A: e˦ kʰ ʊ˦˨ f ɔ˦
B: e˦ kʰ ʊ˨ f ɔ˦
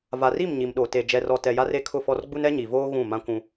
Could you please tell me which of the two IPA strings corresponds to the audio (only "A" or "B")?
A